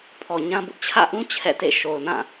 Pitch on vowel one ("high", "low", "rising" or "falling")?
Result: low